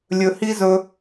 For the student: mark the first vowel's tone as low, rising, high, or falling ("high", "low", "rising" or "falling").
low